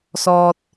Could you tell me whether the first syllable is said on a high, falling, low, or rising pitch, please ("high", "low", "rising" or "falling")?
high